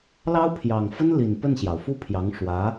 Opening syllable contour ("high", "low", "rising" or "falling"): high